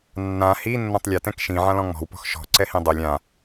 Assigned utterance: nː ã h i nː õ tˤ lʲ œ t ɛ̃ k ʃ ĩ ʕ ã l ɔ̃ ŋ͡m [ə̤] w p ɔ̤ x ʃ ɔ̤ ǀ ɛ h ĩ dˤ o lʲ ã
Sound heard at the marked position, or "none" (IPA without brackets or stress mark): ɔ̤